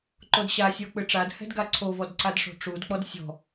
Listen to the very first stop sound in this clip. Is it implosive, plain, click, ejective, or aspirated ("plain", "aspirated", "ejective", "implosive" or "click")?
click